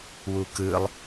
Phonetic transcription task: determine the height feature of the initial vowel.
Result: high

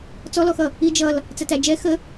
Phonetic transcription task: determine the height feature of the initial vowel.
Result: mid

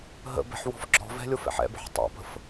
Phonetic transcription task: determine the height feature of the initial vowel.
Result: mid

